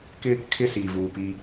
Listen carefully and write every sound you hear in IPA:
k ɪ˦ | kʰ ɪ˦ s iː˨ v uː˨ p iː˦

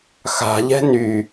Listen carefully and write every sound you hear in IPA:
x a̤ ʎ ɛ̤ n y

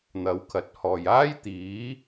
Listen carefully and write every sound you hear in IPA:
n̪ ɐ˨˥ w kʰ ɐ˨˥ t̚ h ɔː˨ j aː˥ j t̪ iː˨˥

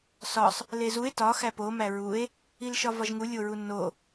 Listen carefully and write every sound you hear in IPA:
s ɒ sˤ | l e z u e̯ t ɒ x æ p o m æ ɹ u e̯ | i l ʃ ɒ v ɒ ʒ ŋ u lʲ o ɹ u nː o

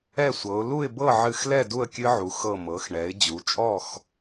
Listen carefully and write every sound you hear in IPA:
ɛ˥˨ sʷ ɤ˩˧ ʊ̯ l u˥˨ ɪ̯ b ɤ˥˨ ʕ ɨ˧˩ x l ɛ˥˨ d u˥˨ ə̯ kʲ ɨ˦˥ ʕ u˩˧ x ɤ˧˩ m ɤ˩˧ x ɳ ɛ˩˧ ɪ̯ d͡ʑ u˩˧ t͡ʃʼ ɔ˥˨ x

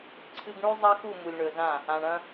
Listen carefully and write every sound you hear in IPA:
ǀʰ ɨ˦ ɡ ɳ ʉ˦ zˤ ɐ˦ x u˦˨ m u˨ lʲ ɳ ɵ˨ z ã˦˨ | ã˨ ɳ ɐ̃˦

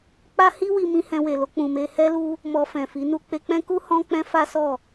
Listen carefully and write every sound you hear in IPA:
k͡p a˦ h i˦ w i˧ m ĩ˧ h ɛ̃˧ w e˨ l o˧ k͡p ũ˨ m e˧ h ɛ˦ l u˦ | m ɔ˧ f ɛ̃˨ f i˨˦ n u˧ k͡p e˧ k͡p ɛ̃˦ k u˦ h ɔ̃˦ k͡p ɛ̃˦ f a˦ s ɔ˦˨

